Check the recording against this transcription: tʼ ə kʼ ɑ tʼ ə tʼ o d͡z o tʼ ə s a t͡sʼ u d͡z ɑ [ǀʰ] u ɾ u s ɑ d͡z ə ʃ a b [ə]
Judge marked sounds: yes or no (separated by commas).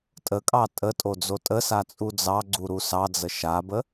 no, yes